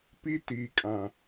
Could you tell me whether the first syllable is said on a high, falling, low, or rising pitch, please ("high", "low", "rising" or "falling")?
high